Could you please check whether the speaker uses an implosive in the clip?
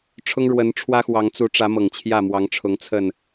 no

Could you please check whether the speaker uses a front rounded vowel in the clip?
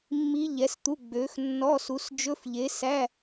yes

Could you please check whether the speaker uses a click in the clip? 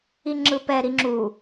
yes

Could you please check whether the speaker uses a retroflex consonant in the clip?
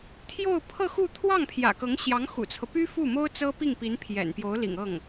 no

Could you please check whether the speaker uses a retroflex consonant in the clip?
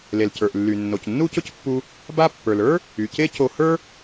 no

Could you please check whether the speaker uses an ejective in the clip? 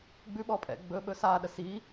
yes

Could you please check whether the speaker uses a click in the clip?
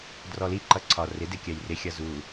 yes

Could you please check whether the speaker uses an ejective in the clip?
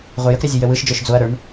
no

